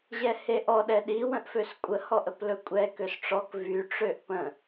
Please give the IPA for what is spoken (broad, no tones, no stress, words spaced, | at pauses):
ʑɛheʔɔ ɗɛɗi wə̃ʔføskʷʼə hɔʔəplɵkʷʼɛ køsʈ͡ʂɔk vy ʈ͡ʂøʔpə̃